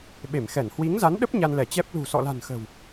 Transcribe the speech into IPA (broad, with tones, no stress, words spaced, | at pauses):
ɓe˧˩mxɛ˧˩n hwi˨˦ŋza˨˦nɗə˦˥p̚ ɲa˧nlɛ˧˩t͡ɕɛ˦˥p̚ lṳ˨˩sɔ̰˧˨la̤˨˩n xə̤˨˩w